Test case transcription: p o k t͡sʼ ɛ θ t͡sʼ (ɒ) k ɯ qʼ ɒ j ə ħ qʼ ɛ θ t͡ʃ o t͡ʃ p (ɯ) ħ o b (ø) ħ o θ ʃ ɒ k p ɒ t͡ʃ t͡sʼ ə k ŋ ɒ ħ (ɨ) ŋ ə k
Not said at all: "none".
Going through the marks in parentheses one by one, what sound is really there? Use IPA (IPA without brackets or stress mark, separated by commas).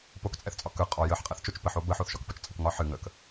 ɒ, ə, ə, ɨ